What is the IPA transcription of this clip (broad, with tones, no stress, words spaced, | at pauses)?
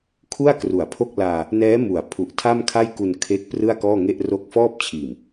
kʰu˥˩a̯kru˩˦a̯pʰo˥˩k̚ laː˧ | nɛː˦˥mu˩˦a̯ pʰu˨˩ʔtʰa˥˩mkʰa˥˩j ku˧nkʰe˦˥k̚ prɯ˥˩a̯kɔː˥˩ŋe˥˩ʔ ro˦˥k̚fɔː˥˩p̚t͡ɕʰiː˨˩m